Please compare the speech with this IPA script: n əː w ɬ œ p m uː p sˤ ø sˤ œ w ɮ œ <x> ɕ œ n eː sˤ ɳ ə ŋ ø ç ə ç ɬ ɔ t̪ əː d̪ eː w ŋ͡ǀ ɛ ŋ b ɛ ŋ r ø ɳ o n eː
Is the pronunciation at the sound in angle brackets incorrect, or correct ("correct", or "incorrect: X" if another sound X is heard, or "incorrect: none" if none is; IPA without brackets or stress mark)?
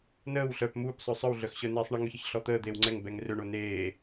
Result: correct